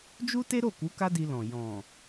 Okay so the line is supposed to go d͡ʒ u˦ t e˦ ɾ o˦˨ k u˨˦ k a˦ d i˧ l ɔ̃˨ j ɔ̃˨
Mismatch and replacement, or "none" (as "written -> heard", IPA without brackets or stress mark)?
none